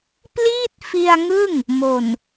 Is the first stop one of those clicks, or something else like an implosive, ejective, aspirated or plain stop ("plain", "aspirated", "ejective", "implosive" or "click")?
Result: plain